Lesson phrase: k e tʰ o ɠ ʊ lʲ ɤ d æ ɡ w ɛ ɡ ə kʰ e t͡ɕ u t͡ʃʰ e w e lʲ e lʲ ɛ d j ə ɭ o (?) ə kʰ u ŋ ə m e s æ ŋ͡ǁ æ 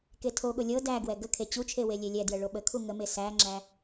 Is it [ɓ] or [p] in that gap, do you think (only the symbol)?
ɓ